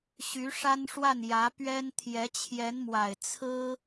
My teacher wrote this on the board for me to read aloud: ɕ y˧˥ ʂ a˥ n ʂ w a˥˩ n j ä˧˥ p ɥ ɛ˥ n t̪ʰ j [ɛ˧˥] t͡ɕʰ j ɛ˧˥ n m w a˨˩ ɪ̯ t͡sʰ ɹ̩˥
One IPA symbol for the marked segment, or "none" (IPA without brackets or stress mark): ɛ˧˥